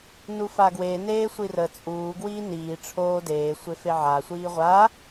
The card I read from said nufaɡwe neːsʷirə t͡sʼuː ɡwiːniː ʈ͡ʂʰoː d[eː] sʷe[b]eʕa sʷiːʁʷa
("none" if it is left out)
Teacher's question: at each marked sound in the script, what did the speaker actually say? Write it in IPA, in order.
eː, f

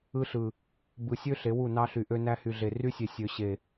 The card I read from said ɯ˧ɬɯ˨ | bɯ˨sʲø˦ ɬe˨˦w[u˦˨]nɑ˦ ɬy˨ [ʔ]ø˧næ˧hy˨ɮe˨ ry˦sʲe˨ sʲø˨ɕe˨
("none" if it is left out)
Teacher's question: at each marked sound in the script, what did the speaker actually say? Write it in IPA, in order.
u˦˨, ʔ

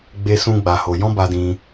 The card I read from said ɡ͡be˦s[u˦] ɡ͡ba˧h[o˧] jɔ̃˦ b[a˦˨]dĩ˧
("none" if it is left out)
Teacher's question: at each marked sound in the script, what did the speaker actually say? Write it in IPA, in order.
ũ˦, o˧, a˧

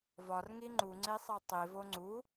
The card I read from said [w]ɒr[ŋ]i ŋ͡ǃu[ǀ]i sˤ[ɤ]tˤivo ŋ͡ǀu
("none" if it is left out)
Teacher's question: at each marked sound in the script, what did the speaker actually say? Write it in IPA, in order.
v, ŋ, ŋ͡ǀ, ɤ

